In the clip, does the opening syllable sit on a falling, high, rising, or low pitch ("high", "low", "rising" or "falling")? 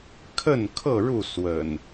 falling